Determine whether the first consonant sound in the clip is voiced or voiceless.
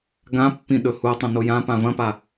voiced